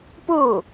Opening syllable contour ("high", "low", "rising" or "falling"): falling